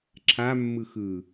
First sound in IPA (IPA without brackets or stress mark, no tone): ǁʰ